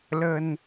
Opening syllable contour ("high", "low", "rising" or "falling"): low